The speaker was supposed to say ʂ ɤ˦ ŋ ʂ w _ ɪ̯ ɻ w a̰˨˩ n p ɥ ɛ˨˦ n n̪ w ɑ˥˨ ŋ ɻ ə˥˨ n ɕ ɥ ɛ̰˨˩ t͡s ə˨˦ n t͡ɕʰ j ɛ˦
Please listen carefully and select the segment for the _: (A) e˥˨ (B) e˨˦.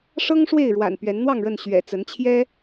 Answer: A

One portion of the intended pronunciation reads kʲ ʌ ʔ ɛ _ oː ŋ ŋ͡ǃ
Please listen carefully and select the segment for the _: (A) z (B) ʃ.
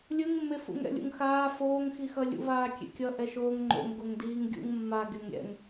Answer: B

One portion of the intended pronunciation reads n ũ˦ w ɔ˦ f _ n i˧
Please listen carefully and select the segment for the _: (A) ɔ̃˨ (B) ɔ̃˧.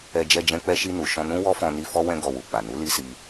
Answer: B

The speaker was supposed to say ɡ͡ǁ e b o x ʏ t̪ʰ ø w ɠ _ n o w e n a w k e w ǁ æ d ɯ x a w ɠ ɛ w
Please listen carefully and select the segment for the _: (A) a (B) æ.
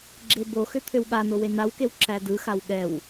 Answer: A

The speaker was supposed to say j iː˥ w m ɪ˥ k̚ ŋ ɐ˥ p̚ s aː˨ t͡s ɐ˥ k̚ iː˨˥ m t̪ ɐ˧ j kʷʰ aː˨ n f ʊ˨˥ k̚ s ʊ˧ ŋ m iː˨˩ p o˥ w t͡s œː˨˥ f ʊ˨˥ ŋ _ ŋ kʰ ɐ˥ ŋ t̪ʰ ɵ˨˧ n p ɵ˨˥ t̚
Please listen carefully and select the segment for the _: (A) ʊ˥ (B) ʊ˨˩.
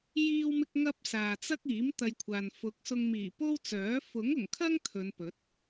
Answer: B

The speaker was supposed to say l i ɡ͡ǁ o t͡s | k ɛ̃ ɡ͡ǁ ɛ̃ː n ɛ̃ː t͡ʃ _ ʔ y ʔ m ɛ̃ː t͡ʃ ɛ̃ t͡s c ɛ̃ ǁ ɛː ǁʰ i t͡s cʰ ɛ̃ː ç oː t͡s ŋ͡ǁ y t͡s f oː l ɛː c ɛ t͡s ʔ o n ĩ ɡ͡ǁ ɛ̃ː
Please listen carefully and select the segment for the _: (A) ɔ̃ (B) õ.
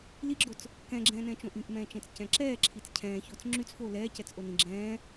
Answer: B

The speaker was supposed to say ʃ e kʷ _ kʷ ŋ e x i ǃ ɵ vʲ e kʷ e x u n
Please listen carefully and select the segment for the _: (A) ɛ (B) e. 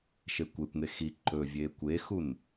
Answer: B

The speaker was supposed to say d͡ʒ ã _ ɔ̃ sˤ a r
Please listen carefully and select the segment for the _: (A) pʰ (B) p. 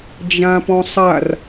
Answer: B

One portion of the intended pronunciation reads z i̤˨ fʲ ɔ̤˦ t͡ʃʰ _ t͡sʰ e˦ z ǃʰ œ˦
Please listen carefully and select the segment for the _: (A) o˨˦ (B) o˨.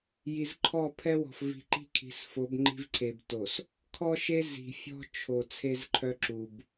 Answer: B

